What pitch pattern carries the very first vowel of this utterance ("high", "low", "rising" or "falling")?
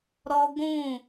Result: high